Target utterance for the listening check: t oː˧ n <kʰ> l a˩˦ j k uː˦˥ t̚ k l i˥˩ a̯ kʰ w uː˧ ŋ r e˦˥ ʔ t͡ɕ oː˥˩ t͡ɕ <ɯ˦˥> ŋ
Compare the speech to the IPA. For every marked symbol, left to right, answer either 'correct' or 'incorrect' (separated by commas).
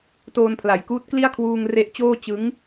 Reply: incorrect, correct